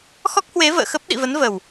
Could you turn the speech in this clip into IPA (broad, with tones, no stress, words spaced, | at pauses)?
xɔ˦˥k̚hwe˨˦ və̰ː˧˨xə˦˥p̚ ɗḭ˧˨və˨˦n və˨˩w